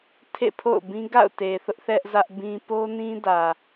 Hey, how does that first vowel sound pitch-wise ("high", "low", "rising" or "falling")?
falling